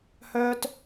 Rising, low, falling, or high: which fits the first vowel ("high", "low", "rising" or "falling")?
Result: high